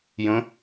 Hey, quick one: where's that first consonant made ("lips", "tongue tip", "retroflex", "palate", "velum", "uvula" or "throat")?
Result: palate